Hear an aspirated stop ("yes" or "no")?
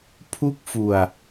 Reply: yes